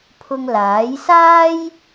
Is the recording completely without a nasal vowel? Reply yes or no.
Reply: yes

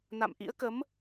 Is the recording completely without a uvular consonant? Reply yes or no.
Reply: yes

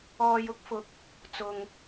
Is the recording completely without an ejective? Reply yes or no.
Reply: yes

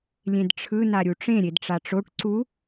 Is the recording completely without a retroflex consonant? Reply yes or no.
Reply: no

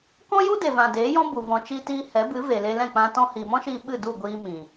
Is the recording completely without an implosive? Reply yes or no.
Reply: no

